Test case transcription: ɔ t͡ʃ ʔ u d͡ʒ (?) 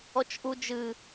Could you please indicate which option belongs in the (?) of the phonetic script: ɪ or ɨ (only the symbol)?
ɨ